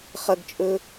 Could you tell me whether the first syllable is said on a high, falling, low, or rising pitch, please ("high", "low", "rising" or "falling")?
high